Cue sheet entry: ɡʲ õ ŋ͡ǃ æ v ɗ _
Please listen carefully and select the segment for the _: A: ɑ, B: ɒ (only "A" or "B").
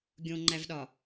B